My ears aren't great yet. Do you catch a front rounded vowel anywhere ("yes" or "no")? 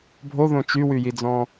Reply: yes